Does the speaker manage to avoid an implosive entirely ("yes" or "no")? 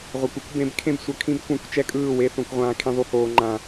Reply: yes